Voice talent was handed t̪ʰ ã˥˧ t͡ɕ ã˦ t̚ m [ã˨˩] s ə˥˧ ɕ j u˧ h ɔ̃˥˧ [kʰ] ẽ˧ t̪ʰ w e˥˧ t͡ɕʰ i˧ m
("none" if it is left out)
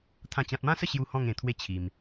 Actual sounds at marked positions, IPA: ã˦, ŋ

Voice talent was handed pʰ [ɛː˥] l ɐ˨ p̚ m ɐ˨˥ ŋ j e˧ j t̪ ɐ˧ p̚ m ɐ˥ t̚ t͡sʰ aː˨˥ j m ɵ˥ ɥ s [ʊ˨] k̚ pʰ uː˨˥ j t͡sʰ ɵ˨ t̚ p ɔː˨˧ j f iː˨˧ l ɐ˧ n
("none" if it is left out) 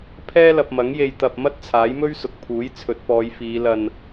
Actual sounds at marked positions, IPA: ɛː˥, ʊ˨

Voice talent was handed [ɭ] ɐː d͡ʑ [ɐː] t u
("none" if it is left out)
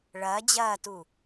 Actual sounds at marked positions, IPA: ɭ, ɐː

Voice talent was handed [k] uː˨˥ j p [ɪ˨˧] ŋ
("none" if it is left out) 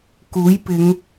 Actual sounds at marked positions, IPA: k, ɪ˨˧

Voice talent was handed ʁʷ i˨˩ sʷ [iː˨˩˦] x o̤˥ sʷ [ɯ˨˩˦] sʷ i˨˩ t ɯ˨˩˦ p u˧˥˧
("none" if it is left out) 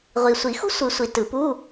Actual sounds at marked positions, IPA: i˨˩˦, ɯ˨˩˦

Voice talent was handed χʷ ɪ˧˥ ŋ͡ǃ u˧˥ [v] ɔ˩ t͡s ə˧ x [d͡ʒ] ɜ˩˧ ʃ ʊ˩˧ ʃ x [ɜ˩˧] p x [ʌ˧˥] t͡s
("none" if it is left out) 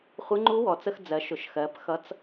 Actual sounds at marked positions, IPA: w, d͡z, ɜ˩˧, ʌ˧˥

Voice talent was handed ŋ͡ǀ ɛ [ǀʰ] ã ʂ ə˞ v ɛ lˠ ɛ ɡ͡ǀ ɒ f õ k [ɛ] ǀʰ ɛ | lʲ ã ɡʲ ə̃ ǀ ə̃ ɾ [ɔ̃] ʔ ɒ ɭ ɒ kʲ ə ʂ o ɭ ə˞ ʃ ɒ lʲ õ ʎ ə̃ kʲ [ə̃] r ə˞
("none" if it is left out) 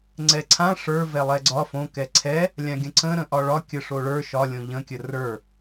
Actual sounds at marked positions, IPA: ǀʰ, ɛ, ə̃, ə

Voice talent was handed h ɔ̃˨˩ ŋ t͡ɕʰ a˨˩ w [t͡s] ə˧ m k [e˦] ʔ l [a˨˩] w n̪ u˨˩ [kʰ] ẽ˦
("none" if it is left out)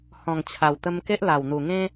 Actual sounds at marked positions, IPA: t̪, e˦, a˨˩, ŋ

